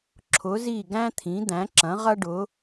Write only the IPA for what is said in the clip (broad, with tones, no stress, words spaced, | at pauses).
ǁʰʊ˩˥zi˥˩ ɡæ̃˥t̪ʰĩ˩˥d̪æ̃˩˥ǁɐ̃˩˥ ʁɐ˥ɖʊ˩˥